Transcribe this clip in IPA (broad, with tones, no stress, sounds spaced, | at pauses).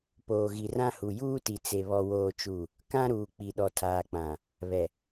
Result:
p oː˨ ɣ i˨ r ã˦ h u˨ j uː˦ t i˨ t͡s e˨ β ɔ˦ w oː˦ t͡ʃ u˦˨ | k ã˦ ɾ uː˨ k͡p i˨ ɗ ɔ˨ tʰ aː˨ k͡p ã˨ | β ɛ˨